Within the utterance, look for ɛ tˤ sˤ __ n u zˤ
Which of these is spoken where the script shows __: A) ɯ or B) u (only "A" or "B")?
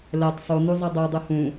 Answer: B